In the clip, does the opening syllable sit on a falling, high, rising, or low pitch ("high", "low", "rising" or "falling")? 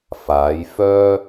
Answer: rising